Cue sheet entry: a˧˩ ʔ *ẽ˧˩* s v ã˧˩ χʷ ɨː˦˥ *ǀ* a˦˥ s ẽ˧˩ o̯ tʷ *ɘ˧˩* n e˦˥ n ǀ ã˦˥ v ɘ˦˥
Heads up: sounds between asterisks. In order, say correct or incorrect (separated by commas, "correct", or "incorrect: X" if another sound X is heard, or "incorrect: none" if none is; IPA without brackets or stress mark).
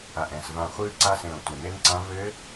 incorrect: ɛ̃˧˩, correct, correct